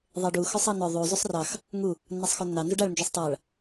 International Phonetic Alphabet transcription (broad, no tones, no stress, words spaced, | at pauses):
ðˤeɖu xœsˤɑnœ ðˤu zusˤrɑx | ŋu | nːɑsˤxonːɑ nzuɖaɭ nd͡ʒysˤtˤaɭ